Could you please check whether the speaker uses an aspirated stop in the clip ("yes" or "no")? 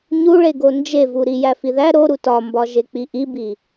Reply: no